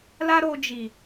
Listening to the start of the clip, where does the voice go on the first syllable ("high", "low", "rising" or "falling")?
high